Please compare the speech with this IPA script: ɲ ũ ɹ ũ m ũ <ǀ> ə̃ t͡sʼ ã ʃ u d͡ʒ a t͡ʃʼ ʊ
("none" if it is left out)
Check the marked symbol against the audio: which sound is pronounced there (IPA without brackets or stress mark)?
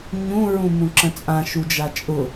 ǁ